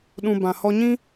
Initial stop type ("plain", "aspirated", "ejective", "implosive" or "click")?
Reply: implosive